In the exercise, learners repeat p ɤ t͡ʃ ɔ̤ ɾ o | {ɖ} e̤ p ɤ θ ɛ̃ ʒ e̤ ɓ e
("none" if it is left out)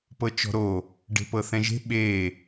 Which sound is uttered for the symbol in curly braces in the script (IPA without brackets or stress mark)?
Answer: ɖ